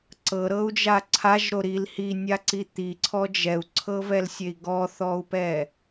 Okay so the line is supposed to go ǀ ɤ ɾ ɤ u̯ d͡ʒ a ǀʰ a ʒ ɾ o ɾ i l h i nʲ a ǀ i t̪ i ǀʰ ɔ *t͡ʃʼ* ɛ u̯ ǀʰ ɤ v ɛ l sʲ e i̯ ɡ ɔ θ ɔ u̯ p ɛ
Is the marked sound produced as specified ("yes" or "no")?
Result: no